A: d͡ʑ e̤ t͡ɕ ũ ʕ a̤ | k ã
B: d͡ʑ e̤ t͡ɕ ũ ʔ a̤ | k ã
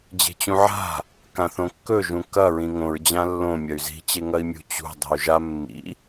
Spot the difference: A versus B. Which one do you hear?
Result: A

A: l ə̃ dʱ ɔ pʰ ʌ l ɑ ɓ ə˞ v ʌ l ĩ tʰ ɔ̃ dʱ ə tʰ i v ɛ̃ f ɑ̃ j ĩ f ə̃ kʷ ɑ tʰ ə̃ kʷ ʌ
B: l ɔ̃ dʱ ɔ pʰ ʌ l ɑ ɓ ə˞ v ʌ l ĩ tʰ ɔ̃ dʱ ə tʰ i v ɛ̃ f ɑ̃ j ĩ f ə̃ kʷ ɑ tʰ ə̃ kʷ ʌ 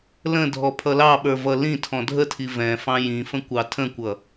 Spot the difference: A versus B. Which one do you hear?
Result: A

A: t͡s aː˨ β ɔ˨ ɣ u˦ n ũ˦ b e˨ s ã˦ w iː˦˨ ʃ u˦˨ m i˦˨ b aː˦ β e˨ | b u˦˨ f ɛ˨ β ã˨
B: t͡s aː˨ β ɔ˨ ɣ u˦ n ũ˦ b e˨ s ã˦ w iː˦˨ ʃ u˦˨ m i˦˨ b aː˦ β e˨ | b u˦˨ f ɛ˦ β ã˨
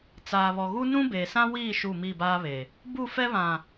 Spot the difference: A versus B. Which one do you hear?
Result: B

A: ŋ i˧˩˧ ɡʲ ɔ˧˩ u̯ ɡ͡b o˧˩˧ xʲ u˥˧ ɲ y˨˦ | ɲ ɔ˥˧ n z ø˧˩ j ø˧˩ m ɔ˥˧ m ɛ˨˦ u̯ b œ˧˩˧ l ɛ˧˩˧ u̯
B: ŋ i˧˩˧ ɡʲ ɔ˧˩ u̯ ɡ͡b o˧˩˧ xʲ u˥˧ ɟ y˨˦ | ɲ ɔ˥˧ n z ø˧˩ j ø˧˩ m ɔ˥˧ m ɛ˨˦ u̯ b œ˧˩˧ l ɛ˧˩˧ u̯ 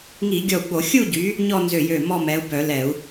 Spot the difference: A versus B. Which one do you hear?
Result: B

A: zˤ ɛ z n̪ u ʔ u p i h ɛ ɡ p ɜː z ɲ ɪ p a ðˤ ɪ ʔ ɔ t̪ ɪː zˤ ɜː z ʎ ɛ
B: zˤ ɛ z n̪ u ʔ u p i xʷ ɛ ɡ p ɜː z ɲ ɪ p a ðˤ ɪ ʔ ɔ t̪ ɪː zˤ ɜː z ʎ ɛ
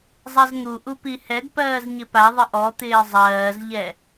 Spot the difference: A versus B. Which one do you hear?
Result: A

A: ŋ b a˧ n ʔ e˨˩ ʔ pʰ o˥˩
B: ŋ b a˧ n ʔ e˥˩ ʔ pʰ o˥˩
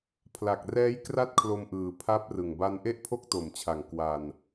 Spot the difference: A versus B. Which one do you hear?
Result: B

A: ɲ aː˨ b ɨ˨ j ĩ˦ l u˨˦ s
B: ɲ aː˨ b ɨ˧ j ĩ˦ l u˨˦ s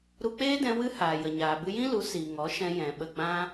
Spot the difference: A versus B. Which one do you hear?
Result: B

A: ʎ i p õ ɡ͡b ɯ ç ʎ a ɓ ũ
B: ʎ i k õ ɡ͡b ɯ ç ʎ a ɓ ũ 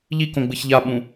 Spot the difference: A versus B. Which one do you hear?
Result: B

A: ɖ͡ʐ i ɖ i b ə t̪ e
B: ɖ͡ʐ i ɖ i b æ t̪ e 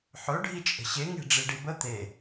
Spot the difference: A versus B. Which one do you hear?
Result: A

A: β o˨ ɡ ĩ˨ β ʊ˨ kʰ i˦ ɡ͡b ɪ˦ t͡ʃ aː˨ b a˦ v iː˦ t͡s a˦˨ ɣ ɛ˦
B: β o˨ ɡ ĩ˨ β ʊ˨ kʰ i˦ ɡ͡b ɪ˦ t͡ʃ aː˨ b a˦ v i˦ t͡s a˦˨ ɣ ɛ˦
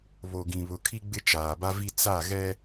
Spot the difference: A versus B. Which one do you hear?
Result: B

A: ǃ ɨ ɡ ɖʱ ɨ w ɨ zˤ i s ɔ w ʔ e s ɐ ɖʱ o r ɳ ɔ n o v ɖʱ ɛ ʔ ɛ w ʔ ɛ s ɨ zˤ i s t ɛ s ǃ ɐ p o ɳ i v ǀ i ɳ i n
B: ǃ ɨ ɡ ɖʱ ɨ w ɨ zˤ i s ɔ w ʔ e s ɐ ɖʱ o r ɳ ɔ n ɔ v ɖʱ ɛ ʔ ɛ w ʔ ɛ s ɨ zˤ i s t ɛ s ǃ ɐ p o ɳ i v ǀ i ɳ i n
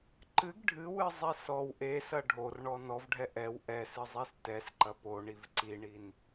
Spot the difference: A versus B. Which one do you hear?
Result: B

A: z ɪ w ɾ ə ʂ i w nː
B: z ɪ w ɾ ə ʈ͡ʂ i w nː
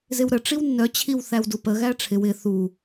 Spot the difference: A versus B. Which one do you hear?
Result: B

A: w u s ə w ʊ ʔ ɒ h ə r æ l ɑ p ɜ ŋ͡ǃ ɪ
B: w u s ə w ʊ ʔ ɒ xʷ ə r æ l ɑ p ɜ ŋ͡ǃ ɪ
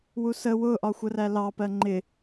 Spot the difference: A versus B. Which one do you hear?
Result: B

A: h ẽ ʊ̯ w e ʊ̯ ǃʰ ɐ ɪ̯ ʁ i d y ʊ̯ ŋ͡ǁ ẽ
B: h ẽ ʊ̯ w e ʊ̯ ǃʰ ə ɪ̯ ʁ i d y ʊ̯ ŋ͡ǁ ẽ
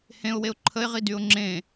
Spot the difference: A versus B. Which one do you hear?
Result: B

